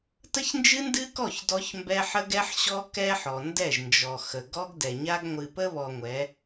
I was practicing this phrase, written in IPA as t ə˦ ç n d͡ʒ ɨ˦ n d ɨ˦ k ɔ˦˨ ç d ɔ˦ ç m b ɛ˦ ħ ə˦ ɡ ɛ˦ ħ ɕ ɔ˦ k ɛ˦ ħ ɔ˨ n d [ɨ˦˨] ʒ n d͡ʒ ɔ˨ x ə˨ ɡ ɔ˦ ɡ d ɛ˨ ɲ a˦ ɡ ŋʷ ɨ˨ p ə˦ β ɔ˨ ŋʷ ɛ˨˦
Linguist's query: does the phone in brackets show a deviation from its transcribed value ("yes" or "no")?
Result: yes